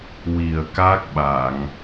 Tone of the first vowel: low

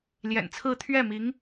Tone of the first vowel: low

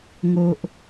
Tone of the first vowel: low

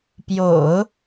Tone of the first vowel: low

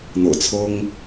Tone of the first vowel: low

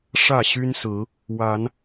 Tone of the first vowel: falling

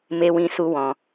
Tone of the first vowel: high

